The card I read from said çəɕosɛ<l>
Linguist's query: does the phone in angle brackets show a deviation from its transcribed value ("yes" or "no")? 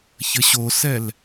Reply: no